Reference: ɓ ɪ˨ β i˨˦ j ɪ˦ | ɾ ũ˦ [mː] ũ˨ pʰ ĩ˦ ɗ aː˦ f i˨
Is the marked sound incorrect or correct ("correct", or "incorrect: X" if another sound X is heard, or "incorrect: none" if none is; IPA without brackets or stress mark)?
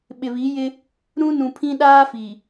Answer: incorrect: n